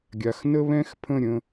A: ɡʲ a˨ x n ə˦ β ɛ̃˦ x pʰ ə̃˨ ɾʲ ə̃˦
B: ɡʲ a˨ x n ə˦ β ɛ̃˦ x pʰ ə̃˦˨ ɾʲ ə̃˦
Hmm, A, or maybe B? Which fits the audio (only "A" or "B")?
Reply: B